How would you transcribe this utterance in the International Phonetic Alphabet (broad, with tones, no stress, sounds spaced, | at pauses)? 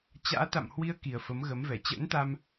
t͡ɕ a̰ː˧˥ t̪ a̰˧˨ m h w i˧ ə̯ k i˨˩ ə̯ f ə˨˦ m ɣ ə˨˦ m v ɛ˧˩ t͡ɕ ə̰ː˧˥ n t̪ a˧ m